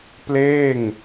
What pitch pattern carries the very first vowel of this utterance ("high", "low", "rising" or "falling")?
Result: falling